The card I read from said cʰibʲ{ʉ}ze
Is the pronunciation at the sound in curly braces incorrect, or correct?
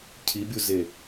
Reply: incorrect